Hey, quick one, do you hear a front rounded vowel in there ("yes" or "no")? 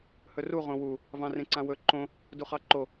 no